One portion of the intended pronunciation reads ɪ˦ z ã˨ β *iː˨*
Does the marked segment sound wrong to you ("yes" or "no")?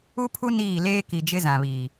no